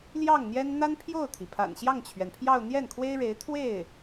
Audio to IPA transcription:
l j ɑ˥˩ ŋ n̪ j ɛ˥ n n̪ a˥ n pʰ j o˥˩ ʊ̯ t̪ʰ i˩ pʰ a̰˨˩ n ɕ j ɑ˥˩ ŋ t͡ɕʰ ɥ ɛ˩ n pʰ j ɑ˥˧ ʊ̯ n̪ j ɛ˥˩ n kʰ w e˥ ɪ̯ ɻ e˧˥ ɪ̯ t̪ʰ w e˥˩ ɪ̯

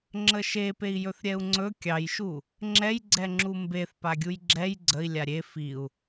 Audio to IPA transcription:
ŋ͡ǁ ə ʃ e p e i̯ j ɵ θ ɾʲ ɛ u̯ ŋ͡ǀ ɵ kʲ ɑ j ʃ u | ŋ͡ǁ ɛ j ɡ͡ǀ ɛ ŋ͡ǁ u m b e θ p a ɡʲ u j ɡ͡ǁ ɛ j ɡ͡ǀ ə i̯ lʲ a ɾʲ e f i u̯

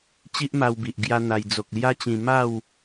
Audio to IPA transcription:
t͡ɕ i˦ ʔ m a˧ w b i˨ ʔ ɡ j a˦ n̪ a˧ j d͡z o˨ k̚ l j a˦ t͡ɕ ĩ˧ m a˥˧ w

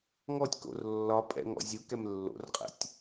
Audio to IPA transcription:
ŋ ɔ tʲ k o̰ r lː ɒ pʼ ɛ̰ ŋ ɔ̰ zʲ u k ɛ m lː o̰ r qʼ ɛ̰ tʲ

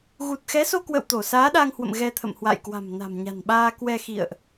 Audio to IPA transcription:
ɣ u˨˩ t̚ x ɛ˨˦ s o˧ k w ə̰˧˨ w t̪ o˧˩ s aː˨˦ ɗ a˧ ŋ h w ə̰˧˨ m ɣ ɛ˧ t̪ʰ ə̰˧˨ m h w a̰˧˨ j k w a̤˨˩ m n a̤˨˩ m ɲ a̤˨˩ n ɓ aː˧ k w ɛ˧ x ḭ˧˨ ə̯ ʔ

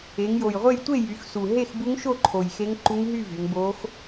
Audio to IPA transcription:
e˩˧ ŋ j o˨˩ j ʁʷ e˥˨ j tʷ e˥˨ j y˩˧ x s u˨˩ ɦ e˥˨ x b u˧˥ ŋ ʃ o˥˨ ǃʰ o˨˩ j x e˧˥ ŋ ǃ u˧˥ ŋ ɦ y˥˨ v y˩˧ ŋ b o˧˥ x

